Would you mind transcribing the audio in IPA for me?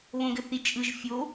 β õ ɡ ɘ θ i t͡ʃʼ ɯ ʒ fʲ o

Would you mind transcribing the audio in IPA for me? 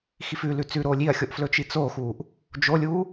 x i f ʉ l ʉ t͡s ʉ ɾ oː lʲ i ɐ̯ xʲ o ʔ f l ɵ t͡ʃ i t͡s oː x uː ʔ | d͡ʒ o lʲ uː

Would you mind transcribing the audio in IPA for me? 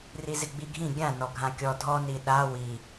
r i z ɪ ɡ͡b i ɡʱ ĩ ɡʲ ã n ɔ ɡʱ ã kʲ ɔ dʱ ɔ n i ɗ a w i

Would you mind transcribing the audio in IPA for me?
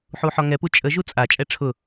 ħ u ħ ɔ ŋ ɛ p u t͡ʃʼ ə ʒ u t͡sʼ a t͡ʃʼ ɛ ʈ͡ʂʰ ʊ

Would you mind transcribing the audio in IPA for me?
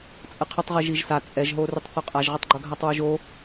t͡sʼ ə qʰ ə tˤ ʁ i ʒ i ʒ s a t͡sʼ ɛ ʒ ɦ o r ʏ tˤ θ o qʼ a ʒ ʁ ʏ tˤ ɡ͡ǃ o ɡʱ a tˤ w o ʒ o

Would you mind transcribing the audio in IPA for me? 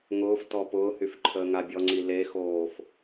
ŋ ʊː f t ɔ p ʊː h y f ǃʰ əː ŋ a bʲ ɔ ŋ͡ǀ i l e x oː f

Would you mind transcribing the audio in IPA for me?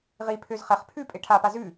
ʁ i pʰ ø z χ ɛ χ pʰ ʉ pʼ e ʈʰ a p a z ʉ

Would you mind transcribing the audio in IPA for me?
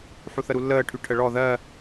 ħ u θ ə ɾ u lː əː ʈʰ y ʈʰ ə ɭ ɔ ð ɜ

